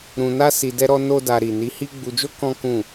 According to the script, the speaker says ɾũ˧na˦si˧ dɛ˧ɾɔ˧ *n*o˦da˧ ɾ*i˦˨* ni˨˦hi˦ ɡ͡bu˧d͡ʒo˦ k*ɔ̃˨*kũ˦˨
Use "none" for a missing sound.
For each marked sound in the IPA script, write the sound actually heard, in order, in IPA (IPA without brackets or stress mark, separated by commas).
n, i˨, ɔ̃˦